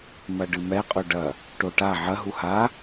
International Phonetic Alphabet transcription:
mɐɖɨmɛ qʼoɖɐ | ʈoʈa ʕɐ ɦuha

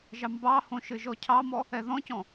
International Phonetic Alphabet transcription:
ʒɑmbɑhõ ʃɘʒɔcʰɑmɔ | ɛðɔ̃cɔ̃

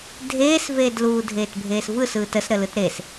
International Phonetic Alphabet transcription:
dʱeːsveːdluː dʱeːtbʱeːsvɯsɯːt əsɾəlɯt ɾes

